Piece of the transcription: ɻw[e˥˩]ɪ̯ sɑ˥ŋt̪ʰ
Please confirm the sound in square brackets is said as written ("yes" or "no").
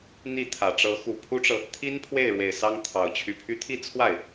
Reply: no